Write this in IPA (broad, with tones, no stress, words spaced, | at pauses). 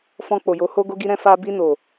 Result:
fɔ̃˧k͡po˨jo˨˦ho˦ ɡo˧ɡi˧ɾɛ̃˧ fa˧ bi˧ no˨